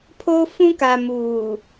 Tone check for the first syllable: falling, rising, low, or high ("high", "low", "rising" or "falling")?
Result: high